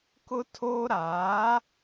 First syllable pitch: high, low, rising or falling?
high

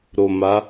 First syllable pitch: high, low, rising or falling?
low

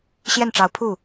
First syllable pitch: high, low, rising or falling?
falling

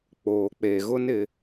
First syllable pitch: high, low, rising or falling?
low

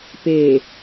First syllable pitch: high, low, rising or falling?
low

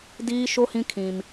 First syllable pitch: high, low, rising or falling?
high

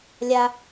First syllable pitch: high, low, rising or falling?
high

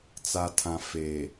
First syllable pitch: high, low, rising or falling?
low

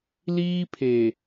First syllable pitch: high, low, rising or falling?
high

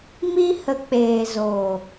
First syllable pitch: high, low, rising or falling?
high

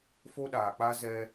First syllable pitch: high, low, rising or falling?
high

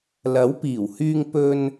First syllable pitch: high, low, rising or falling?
rising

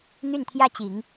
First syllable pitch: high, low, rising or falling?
falling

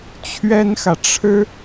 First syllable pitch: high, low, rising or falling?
high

